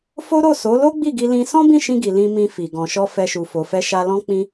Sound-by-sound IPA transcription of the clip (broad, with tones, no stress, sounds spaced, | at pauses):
f o˦ ɾ o˦˨ s o˨˦ l o˦ ɡ͡b i˦˨ ɡ i˧ l ĩ˧ s ɔ̃˦ b ĩ˦˨ ʃ ĩ˧ ɡ i˨ l ĩ˧ m ĩ˧ f i˨ ɡ ɔ̃˨ ʃ ɔ˧ f ɛ˧ ʃ u˨ f o˨ f ɛ˧ ʃ a˧ l ɔ̃˦ k͡p ĩ˦